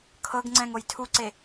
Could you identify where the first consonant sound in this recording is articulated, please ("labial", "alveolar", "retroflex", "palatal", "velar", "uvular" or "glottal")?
velar